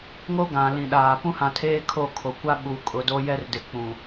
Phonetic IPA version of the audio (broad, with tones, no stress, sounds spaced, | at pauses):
ŋ o˦ ɡ ã˨ l ĩ˨ ɗ aː˨ p ũ˦ h ã˨ tʰ eː˦ kʰ o˦˨ kʰ o˨ kʷ a˦ ɓ u˨ kʼ ʊ˨ d o˦ j ɛ˦ r d ɪ˨ k͡p ũ˨